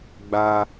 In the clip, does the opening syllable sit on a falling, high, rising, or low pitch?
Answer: high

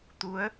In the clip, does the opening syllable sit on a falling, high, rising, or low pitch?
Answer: rising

